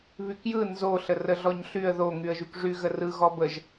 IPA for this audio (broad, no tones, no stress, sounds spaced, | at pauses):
β y k j ɯ n z o ɬ ə r ə ɮ ɔ ɲ ɬ y ə̯ ð o ŋ y ə̯ ʒ y k ʐ y ɣ ə r ɯ ɣ ɔ b ə ʒ